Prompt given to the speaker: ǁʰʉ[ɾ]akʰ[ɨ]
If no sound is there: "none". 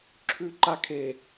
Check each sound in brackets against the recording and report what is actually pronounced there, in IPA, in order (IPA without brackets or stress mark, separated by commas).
ǃ, e